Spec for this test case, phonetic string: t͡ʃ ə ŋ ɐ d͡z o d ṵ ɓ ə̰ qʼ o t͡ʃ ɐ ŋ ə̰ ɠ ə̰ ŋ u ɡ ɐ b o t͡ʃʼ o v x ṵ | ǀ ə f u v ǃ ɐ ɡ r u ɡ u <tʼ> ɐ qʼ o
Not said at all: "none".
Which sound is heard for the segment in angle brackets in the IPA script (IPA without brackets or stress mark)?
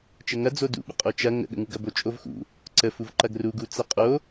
t͡s